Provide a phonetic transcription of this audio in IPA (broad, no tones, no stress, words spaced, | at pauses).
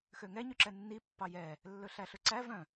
xøŋɛ ɲyǁɛnːi pːɑjɛ | lːɵɬæɬɵǀæ vœ̃